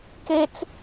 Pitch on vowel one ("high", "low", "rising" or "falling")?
high